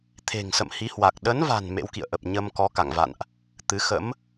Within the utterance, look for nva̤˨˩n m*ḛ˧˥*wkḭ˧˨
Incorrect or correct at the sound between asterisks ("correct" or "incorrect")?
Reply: correct